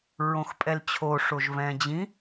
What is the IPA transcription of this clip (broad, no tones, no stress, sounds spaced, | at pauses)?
ɹ õ x pʼ ɛ l t͡ɕʰ o ʂ o ʒ v ɛ̃ d͡ʑ ĩ